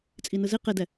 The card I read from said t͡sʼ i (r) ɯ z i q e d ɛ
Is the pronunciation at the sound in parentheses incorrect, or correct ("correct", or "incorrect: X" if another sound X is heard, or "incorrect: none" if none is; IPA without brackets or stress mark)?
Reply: incorrect: n